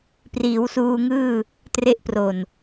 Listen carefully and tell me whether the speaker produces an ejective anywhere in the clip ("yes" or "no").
no